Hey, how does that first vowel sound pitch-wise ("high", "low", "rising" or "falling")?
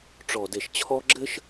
low